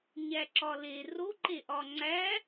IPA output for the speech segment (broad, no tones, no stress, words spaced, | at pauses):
ɲæǁɒle roǃeʔɒ ŋ͡ǀæ